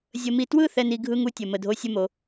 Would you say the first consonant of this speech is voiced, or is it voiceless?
voiced